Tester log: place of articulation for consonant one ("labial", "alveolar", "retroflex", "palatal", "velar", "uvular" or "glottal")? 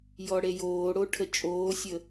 palatal